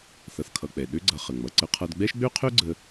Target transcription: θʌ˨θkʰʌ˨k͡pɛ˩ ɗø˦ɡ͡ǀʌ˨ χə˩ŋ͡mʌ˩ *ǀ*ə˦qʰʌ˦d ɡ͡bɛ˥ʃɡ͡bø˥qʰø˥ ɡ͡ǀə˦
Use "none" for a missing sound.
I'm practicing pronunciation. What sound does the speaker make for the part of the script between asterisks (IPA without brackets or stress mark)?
ǀ